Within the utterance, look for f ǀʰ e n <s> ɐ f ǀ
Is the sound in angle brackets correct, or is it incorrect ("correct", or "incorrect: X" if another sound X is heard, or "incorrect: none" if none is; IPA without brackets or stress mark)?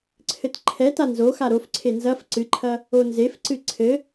incorrect: z